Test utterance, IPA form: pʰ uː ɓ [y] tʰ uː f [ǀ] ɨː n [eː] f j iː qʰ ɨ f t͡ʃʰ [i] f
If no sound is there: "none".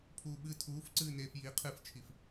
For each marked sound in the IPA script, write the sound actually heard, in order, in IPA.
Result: ɨ, ǀ, eː, i

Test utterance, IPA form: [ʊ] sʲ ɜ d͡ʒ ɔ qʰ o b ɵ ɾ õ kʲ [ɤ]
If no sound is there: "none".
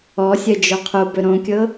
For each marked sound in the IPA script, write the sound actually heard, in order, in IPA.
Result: ɔ, ɤ

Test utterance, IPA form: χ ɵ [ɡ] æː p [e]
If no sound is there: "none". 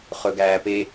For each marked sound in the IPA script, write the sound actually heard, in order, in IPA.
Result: ɡ, e

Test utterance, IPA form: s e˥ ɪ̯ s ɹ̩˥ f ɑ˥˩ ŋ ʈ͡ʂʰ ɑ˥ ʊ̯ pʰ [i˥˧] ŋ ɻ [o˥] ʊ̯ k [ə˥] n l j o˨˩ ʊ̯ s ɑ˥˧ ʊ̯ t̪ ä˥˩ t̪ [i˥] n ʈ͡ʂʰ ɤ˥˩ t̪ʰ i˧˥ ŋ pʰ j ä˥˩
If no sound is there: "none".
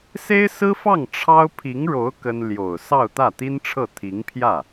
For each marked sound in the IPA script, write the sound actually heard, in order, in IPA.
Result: i˧˥, o˧˥, ə˥, i˥

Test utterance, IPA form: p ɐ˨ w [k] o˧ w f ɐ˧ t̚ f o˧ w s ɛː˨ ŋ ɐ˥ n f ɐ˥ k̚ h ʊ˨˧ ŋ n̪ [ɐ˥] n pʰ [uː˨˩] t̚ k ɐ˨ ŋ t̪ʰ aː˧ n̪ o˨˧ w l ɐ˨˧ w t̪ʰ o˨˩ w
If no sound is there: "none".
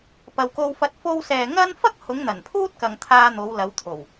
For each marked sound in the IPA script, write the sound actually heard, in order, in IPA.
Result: k, ɐ˨˩, uː˥

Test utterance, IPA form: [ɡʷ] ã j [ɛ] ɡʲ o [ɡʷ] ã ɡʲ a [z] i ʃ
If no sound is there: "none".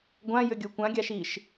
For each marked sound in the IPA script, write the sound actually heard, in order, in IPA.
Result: ɡʷ, ʏ, kʷ, ʃ

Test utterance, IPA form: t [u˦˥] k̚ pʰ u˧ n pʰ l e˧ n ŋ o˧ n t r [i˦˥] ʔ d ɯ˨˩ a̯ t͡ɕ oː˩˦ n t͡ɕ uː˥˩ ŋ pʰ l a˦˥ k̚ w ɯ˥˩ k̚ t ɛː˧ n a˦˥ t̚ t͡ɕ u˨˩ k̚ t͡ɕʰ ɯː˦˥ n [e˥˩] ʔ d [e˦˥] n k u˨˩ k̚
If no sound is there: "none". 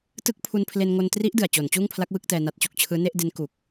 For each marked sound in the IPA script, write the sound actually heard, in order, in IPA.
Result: ɯ˦˥, i˦˥, e˥˩, e˦˥

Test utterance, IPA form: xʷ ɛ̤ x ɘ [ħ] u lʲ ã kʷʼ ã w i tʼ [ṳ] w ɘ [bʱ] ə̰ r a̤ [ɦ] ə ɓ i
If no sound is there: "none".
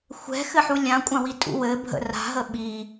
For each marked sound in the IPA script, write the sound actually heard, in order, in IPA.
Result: ħ, ṵ, bʱ, ɦ

